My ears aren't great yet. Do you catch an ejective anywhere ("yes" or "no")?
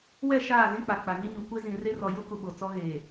no